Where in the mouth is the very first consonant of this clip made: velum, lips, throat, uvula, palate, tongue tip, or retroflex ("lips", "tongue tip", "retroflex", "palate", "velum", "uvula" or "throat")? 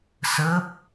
tongue tip